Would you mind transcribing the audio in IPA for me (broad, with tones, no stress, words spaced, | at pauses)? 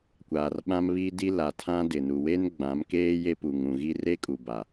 kʷaː˨rɓã˦mβi˦di˦ la˨tʰã˦dɪ˨nu˨ we˦nɡ͡bã˨˦mkeː˦ je˦pu˨ŋũ˨ɣi˦ re˦kʼu˨ba˨